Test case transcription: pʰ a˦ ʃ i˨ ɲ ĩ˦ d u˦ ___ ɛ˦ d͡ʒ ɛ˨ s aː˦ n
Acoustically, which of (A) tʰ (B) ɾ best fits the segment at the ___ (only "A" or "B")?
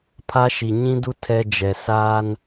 A